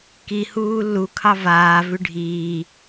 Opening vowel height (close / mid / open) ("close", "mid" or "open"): close